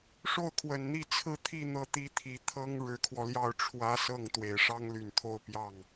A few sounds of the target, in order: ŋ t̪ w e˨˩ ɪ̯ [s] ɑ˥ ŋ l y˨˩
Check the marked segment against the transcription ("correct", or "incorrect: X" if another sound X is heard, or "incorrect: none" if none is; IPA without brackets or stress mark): incorrect: ʂ